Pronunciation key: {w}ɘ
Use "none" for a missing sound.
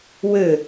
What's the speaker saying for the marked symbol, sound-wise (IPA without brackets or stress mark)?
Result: w